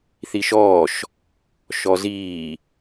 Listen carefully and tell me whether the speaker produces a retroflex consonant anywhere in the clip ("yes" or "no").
no